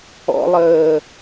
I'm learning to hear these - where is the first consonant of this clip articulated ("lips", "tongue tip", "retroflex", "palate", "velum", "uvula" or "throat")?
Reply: tongue tip